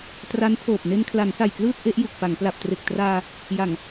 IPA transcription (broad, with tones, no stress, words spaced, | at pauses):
tra˦˥ntʰoː˨˩p̚ ne˧nkʰla˩˦nsa˨˩jklɯː˥˩t̚ ʔe˦˥ʔ ju˨˩k̚pa˩˦ŋ pla˨˩p̚tre˨˩k̚traː˧ | ja˨˩ŋ